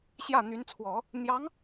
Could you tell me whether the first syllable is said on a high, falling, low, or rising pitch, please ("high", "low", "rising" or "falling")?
falling